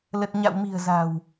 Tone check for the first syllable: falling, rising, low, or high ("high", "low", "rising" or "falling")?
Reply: low